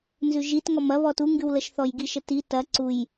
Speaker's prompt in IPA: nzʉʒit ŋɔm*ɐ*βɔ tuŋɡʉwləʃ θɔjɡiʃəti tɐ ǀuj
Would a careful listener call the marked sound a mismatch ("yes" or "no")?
no